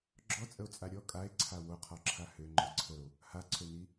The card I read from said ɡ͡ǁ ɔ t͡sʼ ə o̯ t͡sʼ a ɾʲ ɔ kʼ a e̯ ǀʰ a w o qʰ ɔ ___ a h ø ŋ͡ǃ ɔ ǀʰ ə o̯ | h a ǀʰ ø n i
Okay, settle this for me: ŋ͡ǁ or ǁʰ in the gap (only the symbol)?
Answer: ǁʰ